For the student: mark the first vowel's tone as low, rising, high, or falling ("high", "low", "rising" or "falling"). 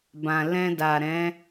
low